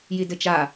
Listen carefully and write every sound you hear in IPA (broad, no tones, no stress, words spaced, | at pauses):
jidɘt͡ʃa